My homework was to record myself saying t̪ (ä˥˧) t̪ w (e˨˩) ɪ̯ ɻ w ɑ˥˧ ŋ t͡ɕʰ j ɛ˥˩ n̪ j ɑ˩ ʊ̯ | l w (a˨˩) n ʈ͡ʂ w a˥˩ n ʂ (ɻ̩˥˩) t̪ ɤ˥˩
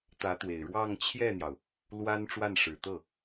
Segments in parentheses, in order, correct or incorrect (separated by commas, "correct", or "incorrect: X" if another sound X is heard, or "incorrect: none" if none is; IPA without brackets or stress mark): incorrect: ä˧˥, correct, incorrect: a˥, incorrect: ɻ̩˨˩